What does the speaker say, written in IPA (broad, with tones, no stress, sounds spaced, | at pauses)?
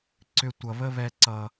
ǀ ʏ˧ tʷ ʌ˨ β ə˦ β ɛ˧ ǀ ʌ˨